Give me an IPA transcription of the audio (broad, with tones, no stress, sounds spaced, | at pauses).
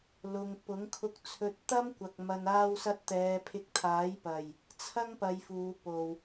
l ʊ˧ ŋ p ʊ˨˥ ŋ kʰ ʊ˧ k̚ t͡sʰ ɵ˧ t̚ t̪ ɐ˥ m kʷ ɐ˨ k̚ m ɐ˨ n aː˧ w s ɐ˧ t̚ t̪ ɛː˨˧ pʰ ɪ˧ k̚ t̪ʰ aː˨˥ j p ɐ˨˩ j | t͡sʰ ɐ˥ ŋ p ɐ˧ j f uː˨˧ p o˨ w